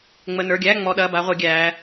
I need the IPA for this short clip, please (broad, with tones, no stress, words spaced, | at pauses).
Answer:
ŋ͡mə˩˧˩nə˞˩˧˩ɡʲæː˧˥˧ ŋ͡mɔ˩˧˩ɗɐ˩˧˩ba˩˧ ʁʷe˩˧ɡʲæː˩˧